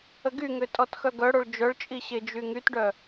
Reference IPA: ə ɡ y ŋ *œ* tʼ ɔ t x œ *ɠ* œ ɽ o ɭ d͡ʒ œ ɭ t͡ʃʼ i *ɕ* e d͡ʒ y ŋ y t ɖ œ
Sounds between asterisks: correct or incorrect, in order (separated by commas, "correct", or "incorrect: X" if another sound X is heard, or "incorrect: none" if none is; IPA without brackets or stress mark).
incorrect: ø, incorrect: ɡ, correct